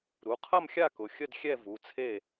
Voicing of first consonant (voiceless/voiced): voiced